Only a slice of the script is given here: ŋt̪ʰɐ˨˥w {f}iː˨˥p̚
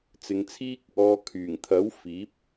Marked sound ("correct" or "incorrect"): correct